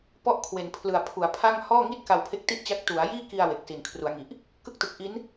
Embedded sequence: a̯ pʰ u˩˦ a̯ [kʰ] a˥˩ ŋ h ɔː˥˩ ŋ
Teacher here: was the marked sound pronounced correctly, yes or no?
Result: no